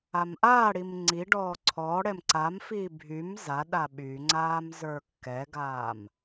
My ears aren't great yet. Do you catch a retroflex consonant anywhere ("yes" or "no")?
yes